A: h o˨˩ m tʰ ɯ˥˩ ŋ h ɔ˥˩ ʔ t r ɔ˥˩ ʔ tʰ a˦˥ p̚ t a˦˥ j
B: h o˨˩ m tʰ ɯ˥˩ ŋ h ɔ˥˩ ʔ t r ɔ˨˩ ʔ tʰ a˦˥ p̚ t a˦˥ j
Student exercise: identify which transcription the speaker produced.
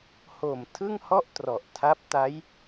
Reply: B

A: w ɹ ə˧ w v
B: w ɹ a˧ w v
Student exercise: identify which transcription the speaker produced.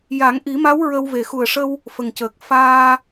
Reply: A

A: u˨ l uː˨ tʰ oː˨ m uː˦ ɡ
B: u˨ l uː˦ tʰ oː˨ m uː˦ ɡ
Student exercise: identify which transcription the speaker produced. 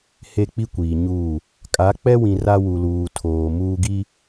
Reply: A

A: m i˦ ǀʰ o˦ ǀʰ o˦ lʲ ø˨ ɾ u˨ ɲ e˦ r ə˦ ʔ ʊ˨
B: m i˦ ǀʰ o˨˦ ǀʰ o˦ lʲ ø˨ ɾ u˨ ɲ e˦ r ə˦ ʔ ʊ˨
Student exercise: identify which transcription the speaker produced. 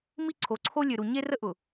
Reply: B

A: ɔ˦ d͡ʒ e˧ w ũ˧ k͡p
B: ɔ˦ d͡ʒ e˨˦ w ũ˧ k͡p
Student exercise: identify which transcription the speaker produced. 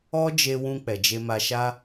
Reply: A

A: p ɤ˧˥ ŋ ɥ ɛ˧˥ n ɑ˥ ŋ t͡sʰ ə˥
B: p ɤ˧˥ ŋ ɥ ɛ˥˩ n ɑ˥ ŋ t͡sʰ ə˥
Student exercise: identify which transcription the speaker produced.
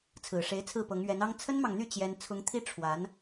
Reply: A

